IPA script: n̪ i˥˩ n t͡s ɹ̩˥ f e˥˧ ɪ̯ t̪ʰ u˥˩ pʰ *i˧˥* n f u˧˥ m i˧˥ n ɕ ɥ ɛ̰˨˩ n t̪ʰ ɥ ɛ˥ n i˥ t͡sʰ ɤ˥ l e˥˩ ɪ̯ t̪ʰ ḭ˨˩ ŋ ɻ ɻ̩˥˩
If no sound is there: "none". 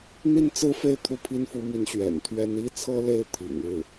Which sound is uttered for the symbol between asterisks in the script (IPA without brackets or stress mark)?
i˥